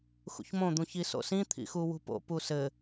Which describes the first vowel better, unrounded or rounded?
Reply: rounded